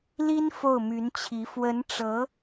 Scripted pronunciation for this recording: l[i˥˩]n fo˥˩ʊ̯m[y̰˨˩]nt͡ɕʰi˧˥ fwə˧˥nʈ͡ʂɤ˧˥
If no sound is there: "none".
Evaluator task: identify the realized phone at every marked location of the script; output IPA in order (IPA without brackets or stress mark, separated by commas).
i˥, y˧˥